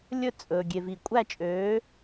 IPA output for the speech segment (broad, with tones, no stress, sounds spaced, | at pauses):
lʲ ɵ˦˨ t͡sʼ ɵː˨ ɡʲ e˨ v i˨ kʷʼ æ˦˨ t͡ʃʼ øː˨˦